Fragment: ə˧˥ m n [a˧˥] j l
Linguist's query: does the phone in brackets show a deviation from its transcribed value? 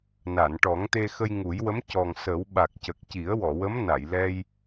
yes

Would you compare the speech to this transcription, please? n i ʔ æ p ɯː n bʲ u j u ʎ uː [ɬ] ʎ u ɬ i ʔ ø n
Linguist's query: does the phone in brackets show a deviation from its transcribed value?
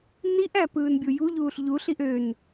no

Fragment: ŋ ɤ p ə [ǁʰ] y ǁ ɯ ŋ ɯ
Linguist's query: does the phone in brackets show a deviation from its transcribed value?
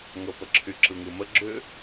no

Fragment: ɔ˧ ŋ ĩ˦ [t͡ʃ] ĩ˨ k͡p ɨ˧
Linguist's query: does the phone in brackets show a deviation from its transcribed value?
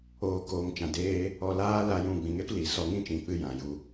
no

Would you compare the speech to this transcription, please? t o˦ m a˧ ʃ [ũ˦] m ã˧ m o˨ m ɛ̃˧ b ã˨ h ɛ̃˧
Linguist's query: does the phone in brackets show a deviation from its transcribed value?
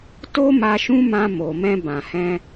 no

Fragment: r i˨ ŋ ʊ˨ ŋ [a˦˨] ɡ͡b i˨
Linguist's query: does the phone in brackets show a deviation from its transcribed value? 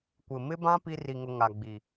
yes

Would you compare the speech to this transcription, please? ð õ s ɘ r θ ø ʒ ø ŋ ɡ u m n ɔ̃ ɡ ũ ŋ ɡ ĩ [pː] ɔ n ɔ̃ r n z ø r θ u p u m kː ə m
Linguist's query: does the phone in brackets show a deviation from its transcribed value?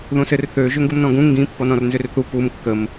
no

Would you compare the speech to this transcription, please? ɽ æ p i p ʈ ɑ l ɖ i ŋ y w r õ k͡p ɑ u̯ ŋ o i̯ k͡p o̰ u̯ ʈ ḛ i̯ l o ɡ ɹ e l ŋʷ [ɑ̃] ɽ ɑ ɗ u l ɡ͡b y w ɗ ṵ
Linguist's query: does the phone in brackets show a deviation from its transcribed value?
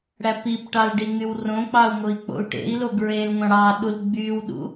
no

